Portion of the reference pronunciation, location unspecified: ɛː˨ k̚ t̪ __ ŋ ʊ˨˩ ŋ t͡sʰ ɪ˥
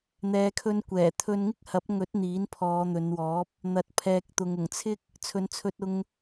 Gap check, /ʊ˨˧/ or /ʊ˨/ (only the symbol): ʊ˨